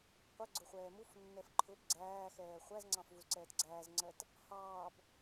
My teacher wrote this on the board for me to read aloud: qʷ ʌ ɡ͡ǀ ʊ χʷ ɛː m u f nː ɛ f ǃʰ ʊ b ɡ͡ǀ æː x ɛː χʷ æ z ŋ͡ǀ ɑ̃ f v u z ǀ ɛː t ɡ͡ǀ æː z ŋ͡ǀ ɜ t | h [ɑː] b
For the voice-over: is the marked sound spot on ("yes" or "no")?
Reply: yes